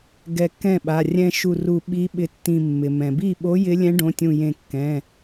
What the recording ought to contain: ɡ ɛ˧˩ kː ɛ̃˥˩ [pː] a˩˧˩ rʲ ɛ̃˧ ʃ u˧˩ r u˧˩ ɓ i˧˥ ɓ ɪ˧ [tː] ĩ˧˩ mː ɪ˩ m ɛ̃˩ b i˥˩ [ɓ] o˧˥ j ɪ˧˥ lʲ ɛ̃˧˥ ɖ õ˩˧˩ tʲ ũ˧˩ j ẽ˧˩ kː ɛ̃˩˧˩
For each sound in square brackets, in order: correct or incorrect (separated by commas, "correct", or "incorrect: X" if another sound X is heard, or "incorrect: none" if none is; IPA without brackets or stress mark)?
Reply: incorrect: ɓ, correct, correct